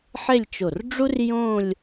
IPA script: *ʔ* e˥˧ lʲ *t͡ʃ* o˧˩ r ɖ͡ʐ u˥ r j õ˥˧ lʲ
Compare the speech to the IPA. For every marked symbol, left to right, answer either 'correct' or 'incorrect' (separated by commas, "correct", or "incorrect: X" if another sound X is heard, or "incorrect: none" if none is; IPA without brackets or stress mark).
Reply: incorrect: ħ, correct